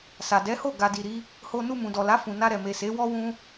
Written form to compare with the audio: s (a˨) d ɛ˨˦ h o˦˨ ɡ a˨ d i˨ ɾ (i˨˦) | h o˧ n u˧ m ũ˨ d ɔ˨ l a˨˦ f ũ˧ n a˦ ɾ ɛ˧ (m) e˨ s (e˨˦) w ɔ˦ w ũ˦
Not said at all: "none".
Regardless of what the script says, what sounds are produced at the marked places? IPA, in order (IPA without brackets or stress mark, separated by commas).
a˨, i˨˦, m, e˨˦